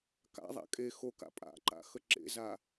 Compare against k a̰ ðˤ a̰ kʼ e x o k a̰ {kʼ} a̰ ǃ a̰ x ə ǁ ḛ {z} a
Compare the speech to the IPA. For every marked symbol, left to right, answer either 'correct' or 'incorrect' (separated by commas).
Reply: incorrect, correct